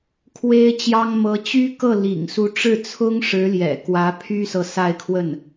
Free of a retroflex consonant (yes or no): no